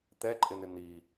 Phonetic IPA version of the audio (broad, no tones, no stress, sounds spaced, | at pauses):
t̪ ɛ ǃʼ ɪ n̪ ɪ n̪ i